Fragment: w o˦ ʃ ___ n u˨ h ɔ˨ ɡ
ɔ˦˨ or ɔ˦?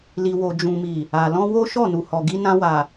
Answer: ɔ˦˨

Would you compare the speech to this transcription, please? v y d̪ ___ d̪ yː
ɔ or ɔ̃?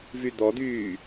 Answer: ɔ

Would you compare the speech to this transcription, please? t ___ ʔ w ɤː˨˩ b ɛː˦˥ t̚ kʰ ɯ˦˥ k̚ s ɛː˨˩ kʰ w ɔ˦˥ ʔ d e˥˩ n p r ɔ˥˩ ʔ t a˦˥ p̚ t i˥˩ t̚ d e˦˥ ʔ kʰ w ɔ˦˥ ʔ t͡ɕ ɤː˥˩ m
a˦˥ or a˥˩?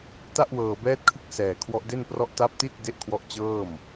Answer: a˥˩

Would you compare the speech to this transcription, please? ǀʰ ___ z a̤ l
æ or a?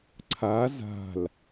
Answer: a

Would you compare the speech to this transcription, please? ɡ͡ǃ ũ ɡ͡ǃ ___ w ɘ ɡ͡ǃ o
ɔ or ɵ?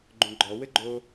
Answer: ɔ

